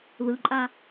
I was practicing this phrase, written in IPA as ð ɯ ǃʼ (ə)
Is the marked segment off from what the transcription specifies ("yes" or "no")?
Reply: yes